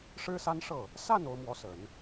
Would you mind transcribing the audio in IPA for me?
ʂ ɻ̩˥ s a˥ n ʂ ɤ˥˩ | s a˥˩ n o˧˥ ʊ̯ m w ɔ˧˥ s ə˨˩˦ n

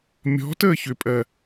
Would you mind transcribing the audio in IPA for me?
mʲ ɔ̤ t əː ç ʏ pʼ ɜ

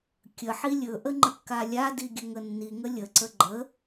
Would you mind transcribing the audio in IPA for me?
kʲ ə ħ i lʲ ɵ ʔ ə ŋ͡ǃ ə kː a lʲ a d i ɡʲ ɵ ŋ ə nː i ŋ ə lʲ ə ǀ ə ɡ͡ǃ ə

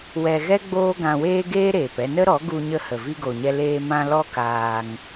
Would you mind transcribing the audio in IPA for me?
w ɛ˧ ɣ ɛ˦ ɡ͡b oː˦ ɡ ã˧ w eː˦ ɡ eː˦ ɾ eː˨ p ɛ˧ n ə˦ ɾ ɔ˨˦ ɡ u˧ ɲ ə˧ h ə˨ v i˧ ɡ o˨ ɲ ɛ˧ l eː˧ m ã˧ l ɔ˦ k aː˧ ŋ

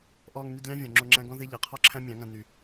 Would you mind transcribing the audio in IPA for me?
ʔ ɔː˧ ŋ n y˧ d lʲ ɑ̃˦ vʲ ɔ̃˨ ŋ͡ǁ o˧ ŋ͡ǁ æ̃˦ ɡ ɔ̃˦ ð e˦ ʎ æ˨ qʰ ɔ˦ ǁʰ æ̃˦ mʲ ɑ̃˨˦ ŋ ã˧ n y˨

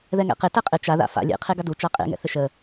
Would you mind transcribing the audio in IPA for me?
ð ɛ ŋ ɛ̰ q ɪ t ɛ qʼ ɪ t͡ʃ a ð a̰ f a̰ lʲ ḛ qʰ e ɡ a d u t͡ʃ a qʼ ḛ ŋ ɛ̰ θ ɪ ʃ ə

